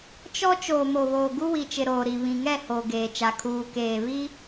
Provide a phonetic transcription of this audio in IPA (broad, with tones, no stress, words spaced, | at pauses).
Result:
t͡ʃɔ˦ t͡ʃoː˨mo˨ βoː˨ɡu˦wi˨t͡ʃɪ˨ ɾoː˨ɾi˨ βĩ˨ŋɛ˦˨ hoː˨ɡeː˨t͡ʃa˨ kʰuː˨keː˨ βi˦